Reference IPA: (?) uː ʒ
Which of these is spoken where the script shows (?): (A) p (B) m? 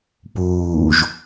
A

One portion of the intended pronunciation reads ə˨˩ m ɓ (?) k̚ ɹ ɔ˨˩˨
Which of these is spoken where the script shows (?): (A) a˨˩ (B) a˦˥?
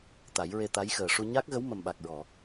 A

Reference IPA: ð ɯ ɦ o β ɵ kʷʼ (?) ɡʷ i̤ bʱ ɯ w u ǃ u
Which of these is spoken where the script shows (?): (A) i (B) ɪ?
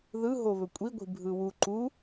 A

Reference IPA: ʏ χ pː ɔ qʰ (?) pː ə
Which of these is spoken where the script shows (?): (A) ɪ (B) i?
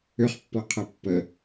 A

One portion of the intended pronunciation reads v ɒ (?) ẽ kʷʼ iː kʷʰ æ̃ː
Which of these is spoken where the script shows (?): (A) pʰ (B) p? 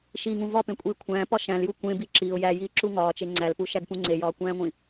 B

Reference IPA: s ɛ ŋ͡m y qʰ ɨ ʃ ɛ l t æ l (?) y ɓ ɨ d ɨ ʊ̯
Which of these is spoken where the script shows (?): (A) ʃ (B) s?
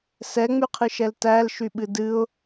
A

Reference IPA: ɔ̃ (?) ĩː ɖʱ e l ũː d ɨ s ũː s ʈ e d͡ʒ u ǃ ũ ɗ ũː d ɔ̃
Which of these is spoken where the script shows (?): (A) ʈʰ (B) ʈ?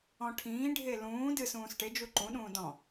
A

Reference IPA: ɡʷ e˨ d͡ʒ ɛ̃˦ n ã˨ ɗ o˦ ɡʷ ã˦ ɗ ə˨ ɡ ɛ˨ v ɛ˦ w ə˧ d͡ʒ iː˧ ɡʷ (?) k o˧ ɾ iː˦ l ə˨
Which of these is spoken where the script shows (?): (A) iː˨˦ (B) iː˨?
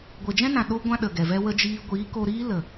A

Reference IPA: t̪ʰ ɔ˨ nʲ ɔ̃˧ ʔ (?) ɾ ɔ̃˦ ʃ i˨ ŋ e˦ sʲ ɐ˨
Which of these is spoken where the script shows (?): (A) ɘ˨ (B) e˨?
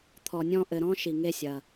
A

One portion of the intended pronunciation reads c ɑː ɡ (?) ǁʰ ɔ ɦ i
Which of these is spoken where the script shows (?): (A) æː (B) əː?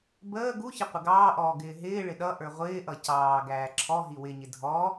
A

